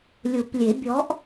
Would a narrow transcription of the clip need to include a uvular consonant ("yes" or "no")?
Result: no